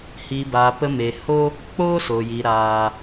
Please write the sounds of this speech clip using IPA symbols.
h i˨ b aː˨ p ə˧ m e˨ h o˦ | k͡p oː˦ s o˨ j i˨ ɾ aː˨

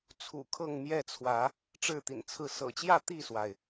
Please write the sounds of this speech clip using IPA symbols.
t͡sʰ ṵ˨˩ kʰ ɤ˥˨ ŋ m j ɛ˥˨ t͡sʰ w ä˨˦ | ʈ͡ʂ ɻ̩˥˨ t̪ ḭ˨˩ n t͡sʰ ɹ̩˥˨ s ɤ̰˨˩ t͡ɕ j ä˥˨ t̪ i˥˨ s w a˩ ɪ̯

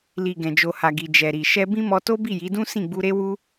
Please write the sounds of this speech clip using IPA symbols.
l i˨ ɡ ɛ̃˨ d͡ʒ o˨ h a˨ ɡ i˨ d͡ʒ ɛ˨ ɾ i˨ ʃ ɛ˧ b ĩ˦ m ɔ˧ t o˦ b i˦˨ j i˨˦ d ũ˦ s ĩ˦˨ ɡ͡b u˧ ɾ e˦ w u˦

